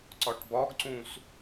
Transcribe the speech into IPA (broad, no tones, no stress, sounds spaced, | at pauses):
ǀ ɒ ʈ b ɒ ɡ ǀ ũ s